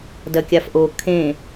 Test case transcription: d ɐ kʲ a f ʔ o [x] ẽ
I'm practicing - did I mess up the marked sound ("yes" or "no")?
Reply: yes